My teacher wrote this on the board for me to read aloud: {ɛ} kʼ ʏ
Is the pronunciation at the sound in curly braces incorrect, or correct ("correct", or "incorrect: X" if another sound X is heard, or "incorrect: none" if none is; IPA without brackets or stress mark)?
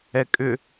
correct